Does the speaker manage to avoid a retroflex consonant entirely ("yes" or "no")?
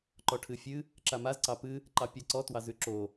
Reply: no